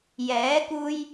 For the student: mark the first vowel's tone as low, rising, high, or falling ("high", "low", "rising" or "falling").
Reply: rising